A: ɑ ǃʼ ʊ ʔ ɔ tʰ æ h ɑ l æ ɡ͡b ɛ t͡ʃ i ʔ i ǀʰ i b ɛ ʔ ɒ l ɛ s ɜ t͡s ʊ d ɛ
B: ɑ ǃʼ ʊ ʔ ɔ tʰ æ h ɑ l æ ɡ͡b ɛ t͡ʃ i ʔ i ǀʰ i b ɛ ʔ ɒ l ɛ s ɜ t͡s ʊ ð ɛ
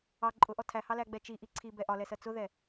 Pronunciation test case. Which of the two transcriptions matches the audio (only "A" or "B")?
B